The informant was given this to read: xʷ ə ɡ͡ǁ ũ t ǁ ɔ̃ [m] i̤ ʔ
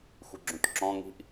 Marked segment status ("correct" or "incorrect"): incorrect